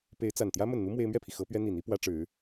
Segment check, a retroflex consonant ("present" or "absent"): present